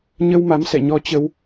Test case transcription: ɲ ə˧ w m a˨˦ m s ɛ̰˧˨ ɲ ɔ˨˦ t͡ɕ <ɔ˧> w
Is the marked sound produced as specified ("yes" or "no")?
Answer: no